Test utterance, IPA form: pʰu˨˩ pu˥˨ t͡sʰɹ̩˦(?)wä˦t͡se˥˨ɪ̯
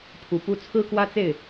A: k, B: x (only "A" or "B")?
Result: A